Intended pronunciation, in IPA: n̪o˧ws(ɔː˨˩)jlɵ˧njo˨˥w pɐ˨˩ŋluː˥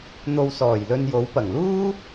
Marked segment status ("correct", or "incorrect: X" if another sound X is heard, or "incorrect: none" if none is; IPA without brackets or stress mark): correct